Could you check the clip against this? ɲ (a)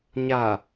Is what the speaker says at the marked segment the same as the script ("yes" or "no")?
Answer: yes